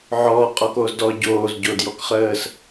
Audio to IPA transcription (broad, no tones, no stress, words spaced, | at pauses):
ʕɔː qʼɔkoːzdɔ ɟoːz ɟodjɔkχəːs